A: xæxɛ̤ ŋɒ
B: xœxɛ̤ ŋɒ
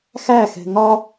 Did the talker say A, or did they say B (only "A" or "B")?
A